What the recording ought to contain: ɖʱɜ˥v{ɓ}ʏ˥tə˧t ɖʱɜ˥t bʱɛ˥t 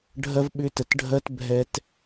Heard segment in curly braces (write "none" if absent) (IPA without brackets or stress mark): ɓ